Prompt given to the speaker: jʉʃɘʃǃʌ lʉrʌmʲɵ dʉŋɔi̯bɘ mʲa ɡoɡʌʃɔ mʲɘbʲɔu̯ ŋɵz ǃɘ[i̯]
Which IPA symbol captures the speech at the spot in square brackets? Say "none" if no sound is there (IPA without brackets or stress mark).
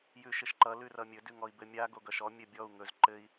i̯